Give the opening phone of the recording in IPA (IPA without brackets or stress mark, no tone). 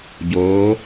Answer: ɟ